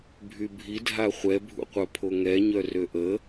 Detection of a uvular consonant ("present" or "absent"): present